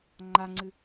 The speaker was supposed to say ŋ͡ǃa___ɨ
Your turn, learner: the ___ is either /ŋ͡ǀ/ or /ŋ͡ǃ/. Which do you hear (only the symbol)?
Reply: ŋ͡ǀ